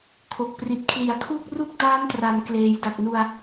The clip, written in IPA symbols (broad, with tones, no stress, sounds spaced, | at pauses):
kʰ o˨˩ k̚ p r i˨˩ t̚ kʰ l i˨˩ a̯ kʰ uː˥˩ k̚ r u˥˩ k̚ d aː˦˥ n t r a˩˦ n k l eː˩˦ j d a˨˩ k̚ n u˧ a̯